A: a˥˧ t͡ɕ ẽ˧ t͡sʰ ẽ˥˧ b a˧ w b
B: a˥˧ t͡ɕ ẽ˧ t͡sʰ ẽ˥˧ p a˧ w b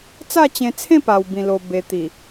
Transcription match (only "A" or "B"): B